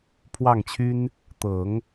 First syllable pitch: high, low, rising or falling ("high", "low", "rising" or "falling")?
falling